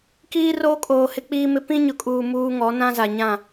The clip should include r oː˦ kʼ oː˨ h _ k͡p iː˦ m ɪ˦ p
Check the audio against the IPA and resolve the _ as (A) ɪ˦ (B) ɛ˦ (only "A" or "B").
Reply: A